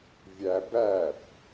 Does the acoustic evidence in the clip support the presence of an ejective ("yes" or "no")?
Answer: no